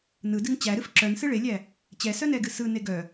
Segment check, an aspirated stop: absent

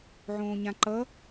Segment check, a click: present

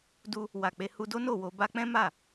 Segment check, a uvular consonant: absent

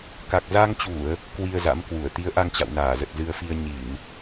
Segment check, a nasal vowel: absent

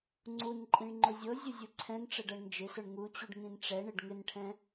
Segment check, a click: present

